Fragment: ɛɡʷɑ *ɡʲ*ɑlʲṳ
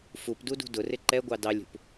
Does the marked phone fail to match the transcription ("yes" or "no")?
yes